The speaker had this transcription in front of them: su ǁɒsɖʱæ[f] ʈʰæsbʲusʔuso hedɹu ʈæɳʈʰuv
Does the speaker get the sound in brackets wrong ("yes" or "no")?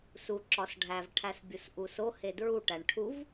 yes